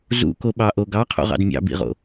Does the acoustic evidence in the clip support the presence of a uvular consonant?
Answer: yes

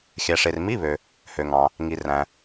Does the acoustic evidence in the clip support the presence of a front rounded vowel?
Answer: yes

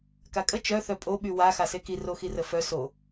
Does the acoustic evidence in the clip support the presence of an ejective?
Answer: yes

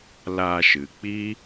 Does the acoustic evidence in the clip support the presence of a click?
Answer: no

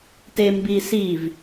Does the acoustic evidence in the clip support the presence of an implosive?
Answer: no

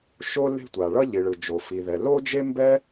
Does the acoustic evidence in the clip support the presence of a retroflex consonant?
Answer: yes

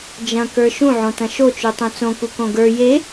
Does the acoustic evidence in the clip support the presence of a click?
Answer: no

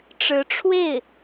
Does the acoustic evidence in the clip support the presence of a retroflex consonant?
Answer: yes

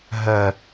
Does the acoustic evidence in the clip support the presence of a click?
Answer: no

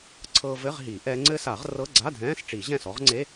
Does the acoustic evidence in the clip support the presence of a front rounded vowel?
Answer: no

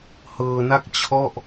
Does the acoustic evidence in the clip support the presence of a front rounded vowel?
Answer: no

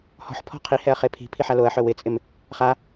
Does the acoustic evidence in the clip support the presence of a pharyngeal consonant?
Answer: yes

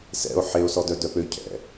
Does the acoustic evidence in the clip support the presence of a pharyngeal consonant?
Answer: yes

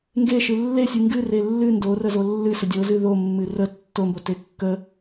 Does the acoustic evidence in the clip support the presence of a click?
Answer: no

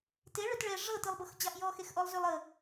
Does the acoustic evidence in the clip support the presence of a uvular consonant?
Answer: no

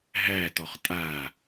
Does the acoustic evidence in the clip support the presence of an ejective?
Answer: yes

